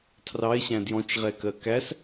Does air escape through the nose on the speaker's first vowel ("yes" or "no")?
no